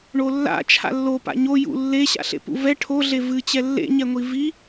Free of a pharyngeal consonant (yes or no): yes